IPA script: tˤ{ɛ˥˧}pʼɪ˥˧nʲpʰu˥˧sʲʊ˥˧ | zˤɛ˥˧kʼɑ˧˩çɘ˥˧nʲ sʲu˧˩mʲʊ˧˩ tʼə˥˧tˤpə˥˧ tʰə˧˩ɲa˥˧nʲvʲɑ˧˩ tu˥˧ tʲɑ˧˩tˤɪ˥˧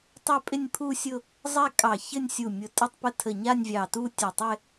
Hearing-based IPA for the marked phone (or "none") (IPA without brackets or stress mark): ɛ˥˧